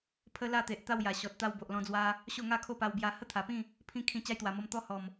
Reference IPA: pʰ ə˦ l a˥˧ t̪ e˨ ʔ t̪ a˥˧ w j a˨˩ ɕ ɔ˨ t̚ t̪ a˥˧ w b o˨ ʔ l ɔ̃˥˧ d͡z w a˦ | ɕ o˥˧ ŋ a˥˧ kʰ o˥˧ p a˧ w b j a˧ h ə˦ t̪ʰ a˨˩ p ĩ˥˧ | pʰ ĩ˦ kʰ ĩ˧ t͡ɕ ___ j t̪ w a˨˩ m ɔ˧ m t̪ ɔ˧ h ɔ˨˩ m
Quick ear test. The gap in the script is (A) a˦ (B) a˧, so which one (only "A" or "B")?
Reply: A